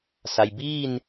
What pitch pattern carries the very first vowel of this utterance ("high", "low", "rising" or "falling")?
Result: low